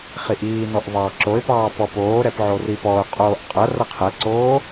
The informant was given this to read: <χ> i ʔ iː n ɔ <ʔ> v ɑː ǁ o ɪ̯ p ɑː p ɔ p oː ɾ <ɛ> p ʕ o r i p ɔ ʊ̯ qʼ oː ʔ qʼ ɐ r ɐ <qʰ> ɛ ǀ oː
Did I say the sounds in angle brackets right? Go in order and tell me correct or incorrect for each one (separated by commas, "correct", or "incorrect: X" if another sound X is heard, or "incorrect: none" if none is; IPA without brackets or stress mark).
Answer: correct, correct, correct, correct